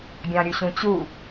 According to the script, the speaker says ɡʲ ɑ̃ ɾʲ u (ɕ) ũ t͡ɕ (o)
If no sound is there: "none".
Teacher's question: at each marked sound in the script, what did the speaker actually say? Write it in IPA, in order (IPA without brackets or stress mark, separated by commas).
ɕ, u